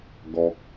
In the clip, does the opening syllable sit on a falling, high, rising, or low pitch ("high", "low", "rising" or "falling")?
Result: high